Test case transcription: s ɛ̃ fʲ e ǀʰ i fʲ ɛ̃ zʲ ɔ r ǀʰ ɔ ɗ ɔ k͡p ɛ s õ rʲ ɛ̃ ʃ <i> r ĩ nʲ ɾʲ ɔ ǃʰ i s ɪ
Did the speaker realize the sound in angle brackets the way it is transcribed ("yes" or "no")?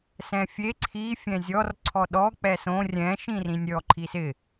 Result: no